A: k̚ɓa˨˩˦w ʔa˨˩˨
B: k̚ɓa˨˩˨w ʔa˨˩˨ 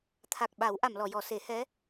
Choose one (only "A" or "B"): A